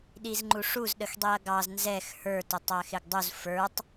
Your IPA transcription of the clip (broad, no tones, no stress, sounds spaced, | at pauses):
ɗ i z ŋ͡ǃ u ʂ u z ɗ ə x dˤ i ɐ̯ ɡ ɑ z n z ɛ x h ə˞ t ʊ tˤ æ x ɪ ɡ dˤ u z f ə˞ tˤ